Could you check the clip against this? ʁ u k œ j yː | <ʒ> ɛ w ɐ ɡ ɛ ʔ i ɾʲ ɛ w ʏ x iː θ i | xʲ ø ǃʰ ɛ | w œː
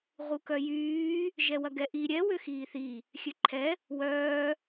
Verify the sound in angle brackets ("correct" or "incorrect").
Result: correct